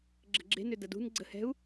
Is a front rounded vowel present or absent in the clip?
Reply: present